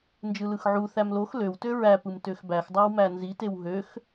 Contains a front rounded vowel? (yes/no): yes